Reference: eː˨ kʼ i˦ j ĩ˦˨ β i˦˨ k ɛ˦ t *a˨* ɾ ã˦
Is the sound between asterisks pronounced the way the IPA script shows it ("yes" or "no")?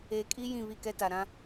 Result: yes